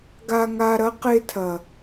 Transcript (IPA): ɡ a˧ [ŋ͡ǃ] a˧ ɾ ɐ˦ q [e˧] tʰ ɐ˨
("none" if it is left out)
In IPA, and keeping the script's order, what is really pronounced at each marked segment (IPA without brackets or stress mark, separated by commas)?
ŋ, e˧